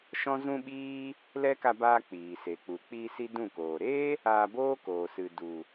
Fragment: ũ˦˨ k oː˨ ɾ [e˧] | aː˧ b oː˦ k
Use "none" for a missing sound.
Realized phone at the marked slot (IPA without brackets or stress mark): e˦